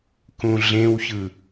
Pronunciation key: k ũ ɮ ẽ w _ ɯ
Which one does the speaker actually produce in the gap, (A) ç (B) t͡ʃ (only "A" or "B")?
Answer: A